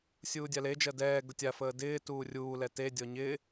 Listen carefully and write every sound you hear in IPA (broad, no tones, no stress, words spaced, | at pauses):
sʲuːdʲaled͡ʒɜ dɛːɡʊ tʲafəː dɪːtuː rʲuːlɛ tedʲɔ ɲɪ